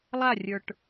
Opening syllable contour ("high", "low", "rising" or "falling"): falling